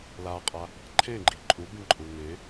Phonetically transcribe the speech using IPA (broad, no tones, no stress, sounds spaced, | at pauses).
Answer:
l a qʼ a | ǃʰ ẽ ɡ͡ǃ i ǃʼ u b ĩ ǃʼ u ŋ ẽ